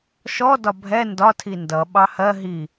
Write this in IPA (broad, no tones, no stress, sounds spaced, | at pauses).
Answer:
ʃ ɔ d ɒ bʱ ɛ n d ɒ tʰ i n d ʌ ɓ ɑ h ɜ ɦ i